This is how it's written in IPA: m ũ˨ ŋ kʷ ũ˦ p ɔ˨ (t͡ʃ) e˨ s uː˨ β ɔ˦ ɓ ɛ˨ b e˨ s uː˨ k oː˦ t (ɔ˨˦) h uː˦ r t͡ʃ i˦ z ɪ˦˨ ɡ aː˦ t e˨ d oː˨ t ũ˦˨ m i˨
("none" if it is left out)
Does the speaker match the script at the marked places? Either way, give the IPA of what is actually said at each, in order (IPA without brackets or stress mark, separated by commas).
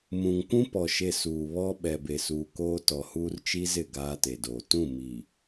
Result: ʃ, ɔ˨